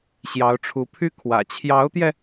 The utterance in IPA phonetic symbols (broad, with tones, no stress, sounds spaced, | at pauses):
ɕ j ɑ˧˥ ʊ̯ ʈ͡ʂʰ u˧˥ pʰ y˥ kʰ w ä̰˨˩ t͡ɕʰ j ɑ˧˥ ʊ̯ t̪ j ɛ˧